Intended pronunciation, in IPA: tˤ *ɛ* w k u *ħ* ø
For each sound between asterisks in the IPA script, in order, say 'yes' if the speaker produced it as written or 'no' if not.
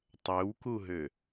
no, no

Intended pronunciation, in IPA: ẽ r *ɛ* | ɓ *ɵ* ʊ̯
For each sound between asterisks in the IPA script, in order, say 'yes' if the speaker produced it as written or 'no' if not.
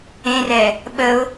yes, no

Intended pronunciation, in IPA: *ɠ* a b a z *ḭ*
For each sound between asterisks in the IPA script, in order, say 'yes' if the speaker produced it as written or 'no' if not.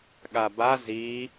yes, no

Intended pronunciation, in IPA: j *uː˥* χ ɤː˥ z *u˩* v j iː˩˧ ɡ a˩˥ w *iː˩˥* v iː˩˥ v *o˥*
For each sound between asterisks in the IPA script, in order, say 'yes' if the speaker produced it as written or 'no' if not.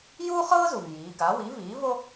yes, yes, no, yes

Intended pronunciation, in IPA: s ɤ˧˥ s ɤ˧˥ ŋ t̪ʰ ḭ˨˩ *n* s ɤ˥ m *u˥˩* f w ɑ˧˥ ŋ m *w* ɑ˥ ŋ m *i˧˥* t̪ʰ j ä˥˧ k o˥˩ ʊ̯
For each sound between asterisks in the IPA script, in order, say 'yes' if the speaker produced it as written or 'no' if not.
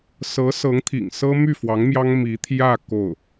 no, no, no, yes

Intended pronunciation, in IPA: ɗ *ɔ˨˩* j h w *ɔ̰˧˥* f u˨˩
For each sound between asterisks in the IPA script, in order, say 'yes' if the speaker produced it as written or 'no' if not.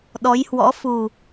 no, yes

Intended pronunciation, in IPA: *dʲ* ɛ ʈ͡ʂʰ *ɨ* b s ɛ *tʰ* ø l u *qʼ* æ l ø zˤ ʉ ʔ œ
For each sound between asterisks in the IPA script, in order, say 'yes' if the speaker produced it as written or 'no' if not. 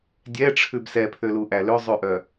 yes, no, no, no

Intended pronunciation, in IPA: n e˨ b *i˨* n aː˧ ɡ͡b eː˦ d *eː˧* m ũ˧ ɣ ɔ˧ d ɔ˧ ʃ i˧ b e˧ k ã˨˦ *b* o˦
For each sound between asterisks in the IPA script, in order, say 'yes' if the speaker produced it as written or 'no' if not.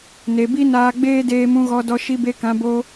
no, yes, yes

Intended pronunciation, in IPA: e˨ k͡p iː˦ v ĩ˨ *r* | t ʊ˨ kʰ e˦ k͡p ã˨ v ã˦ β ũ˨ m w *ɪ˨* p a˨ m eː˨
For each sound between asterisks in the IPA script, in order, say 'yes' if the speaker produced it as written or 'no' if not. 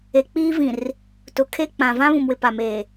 yes, yes

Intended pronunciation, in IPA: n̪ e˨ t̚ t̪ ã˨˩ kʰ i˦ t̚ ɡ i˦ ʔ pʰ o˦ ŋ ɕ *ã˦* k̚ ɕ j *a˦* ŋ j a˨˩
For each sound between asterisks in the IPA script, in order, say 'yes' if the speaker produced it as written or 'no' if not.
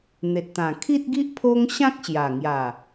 yes, no

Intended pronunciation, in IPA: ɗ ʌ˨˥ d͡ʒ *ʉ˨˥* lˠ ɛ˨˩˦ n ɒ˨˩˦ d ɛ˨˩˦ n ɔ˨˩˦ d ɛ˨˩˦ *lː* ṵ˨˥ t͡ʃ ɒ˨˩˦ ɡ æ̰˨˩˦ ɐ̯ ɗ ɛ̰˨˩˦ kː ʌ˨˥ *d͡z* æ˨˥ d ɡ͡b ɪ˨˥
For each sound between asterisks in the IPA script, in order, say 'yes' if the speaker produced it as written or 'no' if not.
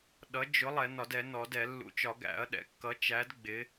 no, yes, no

